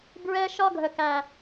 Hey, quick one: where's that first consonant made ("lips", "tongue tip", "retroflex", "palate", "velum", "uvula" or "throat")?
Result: lips